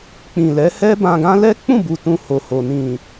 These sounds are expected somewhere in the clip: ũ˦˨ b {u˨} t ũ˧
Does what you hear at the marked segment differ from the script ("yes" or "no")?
no